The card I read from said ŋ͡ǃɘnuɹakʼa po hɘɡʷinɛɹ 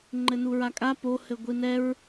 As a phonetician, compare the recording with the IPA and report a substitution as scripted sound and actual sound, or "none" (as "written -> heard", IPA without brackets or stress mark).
none